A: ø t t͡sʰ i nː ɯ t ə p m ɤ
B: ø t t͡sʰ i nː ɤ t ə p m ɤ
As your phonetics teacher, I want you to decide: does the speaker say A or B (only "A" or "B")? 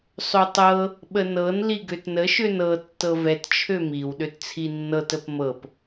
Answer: B